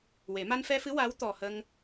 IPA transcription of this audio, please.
w e˨˩˦ m a˧ n f ɛ˧ f ɨ˧˥ w a˧˥ w t̪ ɔ˨˩ h ə˧ ŋ

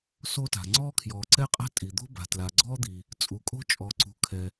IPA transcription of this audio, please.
s o˥ t a̤˩ ŋ͡ǀ ɔː˥ kʰ j ɔː˩ ǀ ɛ˥ qʼ a̤˥ tʼ i˩ d̪ o̤˥ b a̤˩ t l a˩ ɡ͡ǀ ɔː˥ d̪ i˩ | t͡sʼ u˩ kʼ o̤˥ t͡ʃʼ ɔ˩ ǀ ṳ˩ kʰ ɛ˩

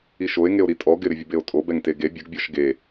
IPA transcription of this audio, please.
i ʃ o e̯ ŋ e o̯ ɾ i tʼ ɔ ɡ ɪ ɾ ɪ vʲ ə b e o̯ tʼ o b ɛ ŋ t e ɡ e bʲ ə ɡ bʲ ɔ ʃ ɡ e

